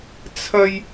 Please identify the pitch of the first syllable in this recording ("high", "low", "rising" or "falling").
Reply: high